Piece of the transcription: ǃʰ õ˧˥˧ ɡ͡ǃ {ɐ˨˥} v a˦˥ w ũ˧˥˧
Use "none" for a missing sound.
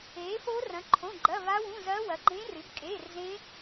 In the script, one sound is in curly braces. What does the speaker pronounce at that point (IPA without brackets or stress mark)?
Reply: ɐ˧˥˧